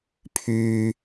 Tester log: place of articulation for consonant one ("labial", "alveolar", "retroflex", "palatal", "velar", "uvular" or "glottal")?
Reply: labial